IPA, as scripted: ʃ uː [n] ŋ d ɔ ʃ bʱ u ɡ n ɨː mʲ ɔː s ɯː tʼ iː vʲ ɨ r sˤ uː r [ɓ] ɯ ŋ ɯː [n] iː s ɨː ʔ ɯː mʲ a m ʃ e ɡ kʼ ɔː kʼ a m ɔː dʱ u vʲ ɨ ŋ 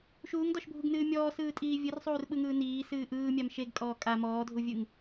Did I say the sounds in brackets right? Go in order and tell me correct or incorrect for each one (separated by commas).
incorrect, correct, correct